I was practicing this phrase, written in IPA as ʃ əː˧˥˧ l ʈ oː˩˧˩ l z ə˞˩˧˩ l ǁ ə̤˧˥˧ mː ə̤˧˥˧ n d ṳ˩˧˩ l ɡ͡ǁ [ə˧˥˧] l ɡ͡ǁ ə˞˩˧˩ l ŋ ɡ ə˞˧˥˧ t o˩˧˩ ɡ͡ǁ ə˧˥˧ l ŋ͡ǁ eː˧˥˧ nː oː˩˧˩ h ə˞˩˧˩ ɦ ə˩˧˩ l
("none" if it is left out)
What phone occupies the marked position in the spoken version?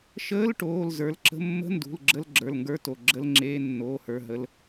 ə˧˥˧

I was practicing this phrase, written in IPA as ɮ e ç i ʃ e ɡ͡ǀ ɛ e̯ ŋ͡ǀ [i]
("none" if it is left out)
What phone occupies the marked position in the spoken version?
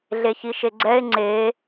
e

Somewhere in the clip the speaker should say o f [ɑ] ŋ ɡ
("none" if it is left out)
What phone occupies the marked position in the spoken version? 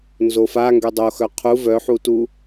a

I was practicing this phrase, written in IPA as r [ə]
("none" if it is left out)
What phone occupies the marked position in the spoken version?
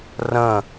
ə̃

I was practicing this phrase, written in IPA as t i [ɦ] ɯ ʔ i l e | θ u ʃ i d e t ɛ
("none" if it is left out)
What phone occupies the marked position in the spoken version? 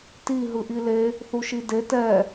ɦ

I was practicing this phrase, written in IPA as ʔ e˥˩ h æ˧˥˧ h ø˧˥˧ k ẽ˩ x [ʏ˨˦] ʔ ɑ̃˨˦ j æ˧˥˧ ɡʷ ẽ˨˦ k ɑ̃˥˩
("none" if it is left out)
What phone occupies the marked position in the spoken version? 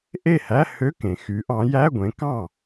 y˨˦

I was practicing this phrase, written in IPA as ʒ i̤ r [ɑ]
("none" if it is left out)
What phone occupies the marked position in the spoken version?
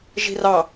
ɑ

